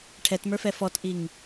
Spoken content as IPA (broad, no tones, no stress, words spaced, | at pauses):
ʈʰɛtmə˞fɛ fɔtʔiŋ